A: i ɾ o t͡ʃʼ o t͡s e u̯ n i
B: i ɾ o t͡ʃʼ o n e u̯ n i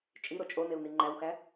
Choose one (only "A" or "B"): B